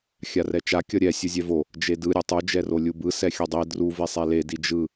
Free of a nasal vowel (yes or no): yes